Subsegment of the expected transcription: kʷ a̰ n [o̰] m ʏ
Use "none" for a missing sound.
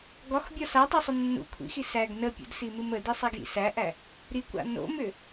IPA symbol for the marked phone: o̰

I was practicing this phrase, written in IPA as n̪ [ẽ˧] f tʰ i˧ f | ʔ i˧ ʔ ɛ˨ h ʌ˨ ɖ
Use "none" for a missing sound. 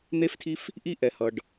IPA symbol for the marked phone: e˧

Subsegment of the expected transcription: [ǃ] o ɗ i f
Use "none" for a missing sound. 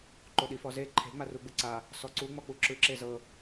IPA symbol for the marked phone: ǃ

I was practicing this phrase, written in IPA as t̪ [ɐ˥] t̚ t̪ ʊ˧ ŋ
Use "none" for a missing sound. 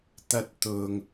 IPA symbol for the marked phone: ɐ˥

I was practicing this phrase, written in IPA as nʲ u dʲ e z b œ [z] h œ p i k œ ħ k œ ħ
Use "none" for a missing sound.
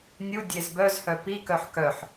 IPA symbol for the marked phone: z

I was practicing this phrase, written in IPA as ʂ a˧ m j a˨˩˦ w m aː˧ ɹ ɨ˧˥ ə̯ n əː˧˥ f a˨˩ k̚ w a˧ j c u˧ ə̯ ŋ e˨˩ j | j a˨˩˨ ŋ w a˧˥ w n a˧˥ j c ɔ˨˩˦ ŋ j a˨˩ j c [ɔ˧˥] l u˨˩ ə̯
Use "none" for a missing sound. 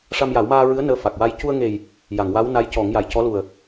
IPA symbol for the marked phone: ɔ˧˥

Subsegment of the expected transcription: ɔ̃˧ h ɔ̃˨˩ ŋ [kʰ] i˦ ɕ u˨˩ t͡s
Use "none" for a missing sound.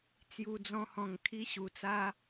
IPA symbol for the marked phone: kʰ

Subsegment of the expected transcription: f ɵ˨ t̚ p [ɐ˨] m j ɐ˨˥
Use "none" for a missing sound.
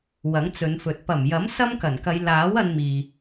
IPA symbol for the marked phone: ɐ˨˩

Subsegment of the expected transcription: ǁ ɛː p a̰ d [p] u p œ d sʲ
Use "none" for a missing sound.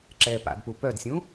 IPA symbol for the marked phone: p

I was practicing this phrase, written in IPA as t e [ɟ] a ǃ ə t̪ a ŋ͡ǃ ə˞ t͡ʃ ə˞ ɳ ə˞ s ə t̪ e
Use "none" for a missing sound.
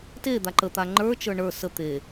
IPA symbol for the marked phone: d̪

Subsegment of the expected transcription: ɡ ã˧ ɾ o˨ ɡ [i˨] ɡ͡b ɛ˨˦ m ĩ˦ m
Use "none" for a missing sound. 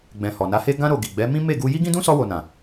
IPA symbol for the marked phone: i˨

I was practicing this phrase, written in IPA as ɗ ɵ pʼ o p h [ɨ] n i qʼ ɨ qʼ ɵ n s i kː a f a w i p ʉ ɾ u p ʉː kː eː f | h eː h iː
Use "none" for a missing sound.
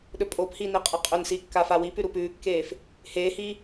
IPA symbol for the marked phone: i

